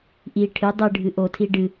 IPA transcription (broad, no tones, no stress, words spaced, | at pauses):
ʔi ʈʰɨ dˤɨ ɖʱɨʔotʰi ɖɨ